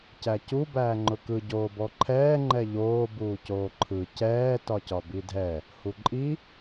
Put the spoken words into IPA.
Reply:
c æ c u b æː ŋ͡ǃ ʊ k ɯ ɟ oː b ɔ ǃʰ ɛː ŋ͡ǃ ɛ ʎ oː b uː c oː ǃʰ ɯ c ɛː t ɒ c ɒ b i dʱ ɛ | h u ǃʼ i

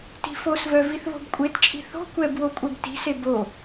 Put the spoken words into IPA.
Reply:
t i̤ f o s v œ v i θ β o̤ b kʷʼ e t t͡ʃʼ i̤ θ o̤ kʷ ɛ b w o kʷʼ ɛ b t i̤ s e b o

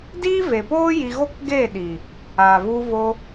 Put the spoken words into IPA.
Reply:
d iː˦ v e˨ p oː˦ j i˧ ɣ o˦ k ɡ eː˦˨ ɗ i˨ | a˨ v u˧ v o˧

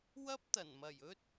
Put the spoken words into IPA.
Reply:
w ɐ˥ p̚ t̪ ɐ˨˩ n m ɐ˨˩ j ɵ˥ t̚

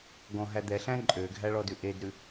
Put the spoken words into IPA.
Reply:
ɡ ɔ̃ ɦ æ d̪ ɛ ɬ æ̃ ǃʼ ø ɡʱ æ ɭ ɔ d ʉ ʔ e d ɾ ʉ

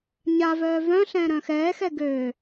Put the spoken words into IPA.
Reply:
ɲ a v œː v œ̃ ɬ ɛ̃ː ɾ œ̃ x ɛː x ɛ ɡ øː

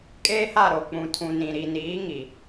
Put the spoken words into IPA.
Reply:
kʼ eː˦ h a˦˨ ɾ o˨ k͡p ũ˨ tʰ ũ˨ n ĩ˨ ɾ i˨ n iː˨˦ ŋ i˨

